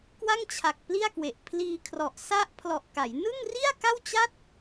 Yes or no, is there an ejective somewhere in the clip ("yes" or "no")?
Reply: no